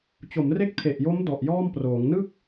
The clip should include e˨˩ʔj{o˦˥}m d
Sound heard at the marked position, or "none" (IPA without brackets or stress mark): o˦˥